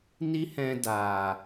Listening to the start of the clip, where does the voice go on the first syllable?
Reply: high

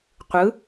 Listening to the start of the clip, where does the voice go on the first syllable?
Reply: rising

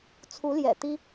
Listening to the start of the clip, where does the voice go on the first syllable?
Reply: rising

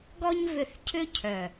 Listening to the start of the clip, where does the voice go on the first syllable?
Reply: high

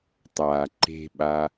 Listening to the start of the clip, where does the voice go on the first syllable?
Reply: low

